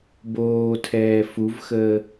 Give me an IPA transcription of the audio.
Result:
b oː tʰ ɛː f u v x əː

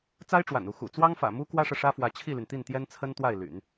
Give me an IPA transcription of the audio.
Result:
t͡s a˥ ɪ̯ ʈ͡ʂ w a̰˨˩ n u˥˩ x ṵ˨˩ t͡s w ɑ˥ ŋ f ä̰˨˩ m u˥ k w ä˥ ʂ ɤ˨ ʂ ä˥ f w ä˧˥ t͡ɕʰ i˥˩ l y˩ n t̪ i˥˩ n t̪ j ɛ˥ n t͡sʰ ə˥ n t̪ w a˥˩ ɪ̯ l y̰˨˩˦ n

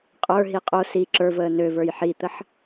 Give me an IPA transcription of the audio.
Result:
qʼ ə˞ ɦ i qʼ o s i ǁ ə˞ v əː n ø v ə˞ j ħ i t̪ ə ħ

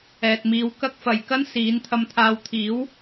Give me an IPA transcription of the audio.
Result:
ɛː˨ t̚ m iː˨˧ w k ɐ˥ k̚ f ɐ˨ j k ɐ˥ n s iː˨˥ n t̪ʰ ɐ˧ m t̪ʰ aː˧ w t̪ʰ iː˨˥ w

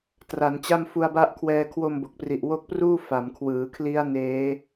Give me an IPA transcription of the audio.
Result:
t r a˩˦ n t͡ɕ a˥˩ m f u˧ a̯ b a˦˥ ʔ kʰ w ɛː˧ kʰ w o˧ m b o˨˩ k̚ p r i˨˩ ʔ w o˦˥ k̚ p r uː˥˩ f a˩˦ m kʰ w ɯː˩˦ kʰ l i˦˥ a̯ n eː˦˥

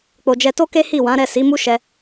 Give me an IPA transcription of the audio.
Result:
k͡p o˨ d͡ʒ ɛ˧ t o˦ k e˦ h i˦˨ w ã˨˦ ɾ ɛ˦˨ s i˨˦ m u˦ ʃ ɛ˧

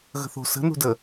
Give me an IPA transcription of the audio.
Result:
ɣ ə̤ θ o̤ s ə̤ n ṳ d ə

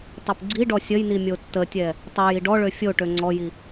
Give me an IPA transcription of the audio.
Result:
tˤ o p ɡ͡ǀ i ɖ ɔ sʲ ə j n i mʲ o tː ə tʲ ɛ | tˤ o j i ɖ ɔ ɭ ø fʲ o ʈ ø ŋ͡ǀ ɔ j i

